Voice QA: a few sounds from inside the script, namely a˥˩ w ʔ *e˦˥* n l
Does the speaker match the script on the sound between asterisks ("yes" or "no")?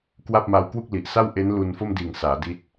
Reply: yes